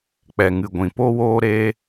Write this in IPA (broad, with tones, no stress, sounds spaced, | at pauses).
k͡p ɛ˨ ŋ ɨ˨ ɡʷ ĩ˨ p o˦ w oː˦ ɾ eː˦